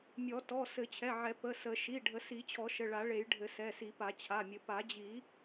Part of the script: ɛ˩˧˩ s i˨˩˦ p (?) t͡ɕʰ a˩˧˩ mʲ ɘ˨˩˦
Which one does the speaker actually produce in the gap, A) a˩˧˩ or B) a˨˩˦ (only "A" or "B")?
B